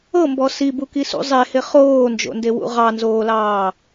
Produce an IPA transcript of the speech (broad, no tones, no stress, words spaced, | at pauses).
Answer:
ɤmbɔ sibukisṵ zˤehɪ χoːnd͡ʒo̰ndewṵ ʁɑnzoːlɑː